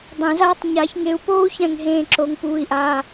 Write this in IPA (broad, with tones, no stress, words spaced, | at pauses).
dˤẽ˨˩˦zaː˥tˤ ɲa˨˩˦çŋe˨˦u̯poː˥u̯ çɛ̃˦˨ŋɦẽː˦˨ ǁo˨˦ŋ puː˩˧˩i̯ʔaː˩˧˩